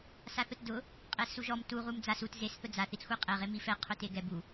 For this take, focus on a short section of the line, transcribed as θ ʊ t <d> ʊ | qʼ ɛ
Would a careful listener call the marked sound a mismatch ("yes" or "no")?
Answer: no